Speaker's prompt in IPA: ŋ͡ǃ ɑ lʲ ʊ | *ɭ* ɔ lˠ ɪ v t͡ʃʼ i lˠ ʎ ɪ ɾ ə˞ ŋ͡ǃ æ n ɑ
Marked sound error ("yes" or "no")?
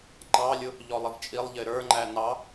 yes